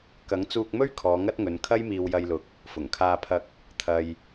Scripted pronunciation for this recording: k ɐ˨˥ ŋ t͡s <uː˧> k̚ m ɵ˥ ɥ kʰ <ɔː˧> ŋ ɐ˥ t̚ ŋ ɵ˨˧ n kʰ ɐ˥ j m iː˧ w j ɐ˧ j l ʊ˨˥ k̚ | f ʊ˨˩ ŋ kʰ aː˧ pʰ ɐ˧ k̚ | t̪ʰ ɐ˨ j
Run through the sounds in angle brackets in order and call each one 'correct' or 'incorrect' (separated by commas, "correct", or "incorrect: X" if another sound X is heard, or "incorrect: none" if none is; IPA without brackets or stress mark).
correct, incorrect: ɔː˨˧